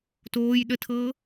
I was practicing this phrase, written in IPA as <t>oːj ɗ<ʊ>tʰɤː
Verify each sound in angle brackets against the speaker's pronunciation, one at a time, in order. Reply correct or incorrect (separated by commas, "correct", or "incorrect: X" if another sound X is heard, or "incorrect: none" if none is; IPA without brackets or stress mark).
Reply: correct, incorrect: ə